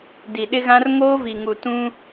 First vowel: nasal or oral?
oral